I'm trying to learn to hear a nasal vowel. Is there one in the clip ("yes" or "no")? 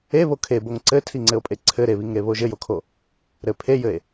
no